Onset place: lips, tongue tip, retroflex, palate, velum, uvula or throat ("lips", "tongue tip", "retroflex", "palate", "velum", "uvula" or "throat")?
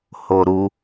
throat